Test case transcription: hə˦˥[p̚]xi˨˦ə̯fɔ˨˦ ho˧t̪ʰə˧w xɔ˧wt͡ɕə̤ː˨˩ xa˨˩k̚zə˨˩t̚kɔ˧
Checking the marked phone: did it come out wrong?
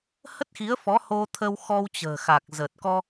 yes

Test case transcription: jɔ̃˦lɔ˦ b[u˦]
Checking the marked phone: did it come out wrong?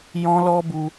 no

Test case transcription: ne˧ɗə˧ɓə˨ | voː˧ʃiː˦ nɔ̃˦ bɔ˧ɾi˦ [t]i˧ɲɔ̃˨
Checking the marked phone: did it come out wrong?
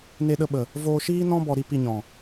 yes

